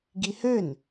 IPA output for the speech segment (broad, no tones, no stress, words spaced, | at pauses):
ɡihøn